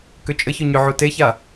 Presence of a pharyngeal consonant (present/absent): present